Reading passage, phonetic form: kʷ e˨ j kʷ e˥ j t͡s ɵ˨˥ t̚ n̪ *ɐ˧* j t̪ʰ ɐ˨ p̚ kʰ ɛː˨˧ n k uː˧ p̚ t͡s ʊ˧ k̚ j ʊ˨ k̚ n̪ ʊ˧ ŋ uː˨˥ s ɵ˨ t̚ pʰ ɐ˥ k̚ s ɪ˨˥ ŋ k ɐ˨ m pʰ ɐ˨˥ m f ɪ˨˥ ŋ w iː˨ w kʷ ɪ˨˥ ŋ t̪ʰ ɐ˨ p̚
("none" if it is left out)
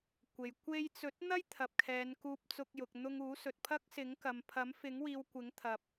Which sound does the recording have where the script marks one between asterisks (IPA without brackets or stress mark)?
ɐ˥